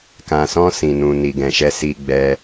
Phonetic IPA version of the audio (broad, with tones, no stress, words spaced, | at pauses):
kã˨sɔ̃˧ sĩ˨nũ˨ ni˨ɡɛ̃˨ʃɛ˧ si˧ɡ͡bɛ˧